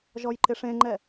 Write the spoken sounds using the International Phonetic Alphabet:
ʒ ɔ j ǃ ɪ ʂ ẽ ŋ͡ǃ ɛ

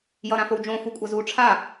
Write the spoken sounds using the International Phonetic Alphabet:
j ʌ ɾ ã f o w d͡ʒ õ f u kʷʼ ʌ z u ʈ͡ʂʰ a

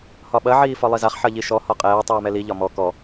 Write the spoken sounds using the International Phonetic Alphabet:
h ɒ ɓ ɐ ʕ iː f ɒ lˠ i z a χ ħ ɐ ʎ i ʃ ɔ h ɒ qʼ ɛː tˤ iː m ɛ l i ʎ ɒ m ɔ k ɔ

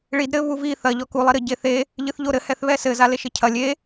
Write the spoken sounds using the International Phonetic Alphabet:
ɭ i d ɾ ɘ β u v i θ ɐ ʎ ɔ k u lˠ i ɾ ɘ ɟ e θ e | ʎ ɨ θ ʎ o ɾ ɘ h ɛ θ β ɛ s ɘ z a l e ʃ ɘ cʰ ɐ lʲ e

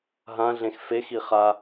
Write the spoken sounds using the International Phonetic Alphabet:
ɦ ã ɮ ẽ x f e x i χ a

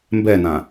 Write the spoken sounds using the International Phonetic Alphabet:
m b ɛ n ã

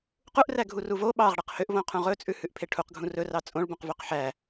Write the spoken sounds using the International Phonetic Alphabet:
q u ʔ r æ ɡʱ u r u v o ɓ ɑ ʁ ɽ ɛ q h ø ʔ v õ qʰ ũ ʁ ɵ t͡sʼ ʉ h ʉ ʔ pʰ e ʈʰ u q ɡʱ ũ r ɵ r ɑ t͡sʼ õ ɭ b ũ q v ø q ħ æ

